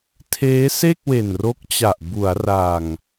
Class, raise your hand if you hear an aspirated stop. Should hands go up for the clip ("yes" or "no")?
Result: yes